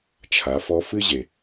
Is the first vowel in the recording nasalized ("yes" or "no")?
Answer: no